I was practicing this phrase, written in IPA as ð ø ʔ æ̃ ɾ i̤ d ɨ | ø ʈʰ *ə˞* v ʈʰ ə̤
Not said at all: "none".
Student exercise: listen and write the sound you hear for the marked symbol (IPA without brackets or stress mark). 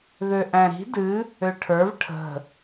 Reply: ə˞